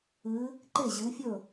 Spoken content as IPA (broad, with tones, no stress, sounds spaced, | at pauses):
ɨː˨˦ | ǃ e˥˩ ʑ ɨː˨˦ fʲ ɵː˥˩